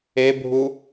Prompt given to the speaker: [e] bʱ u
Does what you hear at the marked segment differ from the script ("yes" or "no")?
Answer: no